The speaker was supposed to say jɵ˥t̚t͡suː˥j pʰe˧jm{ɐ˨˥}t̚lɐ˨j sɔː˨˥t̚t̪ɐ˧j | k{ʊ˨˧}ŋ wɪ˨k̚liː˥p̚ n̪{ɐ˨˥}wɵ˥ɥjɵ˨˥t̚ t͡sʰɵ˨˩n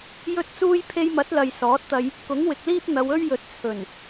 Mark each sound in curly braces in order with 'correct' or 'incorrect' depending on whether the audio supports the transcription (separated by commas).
correct, incorrect, incorrect